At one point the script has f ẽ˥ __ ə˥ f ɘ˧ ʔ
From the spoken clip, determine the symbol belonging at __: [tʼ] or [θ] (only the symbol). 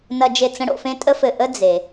tʼ